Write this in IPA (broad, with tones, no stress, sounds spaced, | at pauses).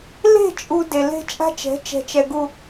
l e̤˦˨ t͡ʃʼ u˨ d e˨ l e̤˦ t͡ʃʼ a̤˦ t͡ʃ ɛ̤˨˦ t͡ʃ ɛ̤˨ t͡ʃ ɛ˨ ɡ u˨